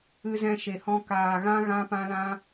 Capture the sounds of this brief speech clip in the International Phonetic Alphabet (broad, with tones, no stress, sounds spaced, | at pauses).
ɨ˦ z ɛ̃˦ ʃ e˧ h ɔ̃˦ k aː˧ ɣ ã˦ ɣ ã˦ p ã˦ l ã˦